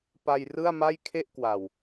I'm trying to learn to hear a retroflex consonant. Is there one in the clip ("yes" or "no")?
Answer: no